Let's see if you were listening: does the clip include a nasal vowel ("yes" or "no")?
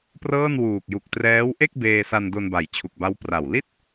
no